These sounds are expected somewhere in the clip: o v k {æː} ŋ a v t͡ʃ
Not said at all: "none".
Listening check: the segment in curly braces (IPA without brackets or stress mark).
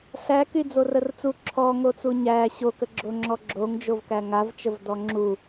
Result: æ